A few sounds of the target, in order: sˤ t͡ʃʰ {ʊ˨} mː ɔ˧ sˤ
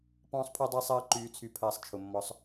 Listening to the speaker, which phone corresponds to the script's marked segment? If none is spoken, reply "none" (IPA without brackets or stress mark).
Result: ʊ˨